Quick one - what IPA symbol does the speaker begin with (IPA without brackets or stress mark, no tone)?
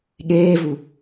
ɠ